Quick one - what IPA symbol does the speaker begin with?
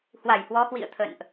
h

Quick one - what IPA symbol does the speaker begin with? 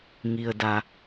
ŋ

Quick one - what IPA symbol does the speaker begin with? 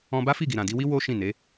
ɔ̃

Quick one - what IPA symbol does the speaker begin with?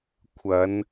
kʷʰ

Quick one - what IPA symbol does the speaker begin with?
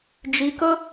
d͡ʒ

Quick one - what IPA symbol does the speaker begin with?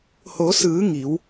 h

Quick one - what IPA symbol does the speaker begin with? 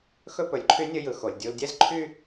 x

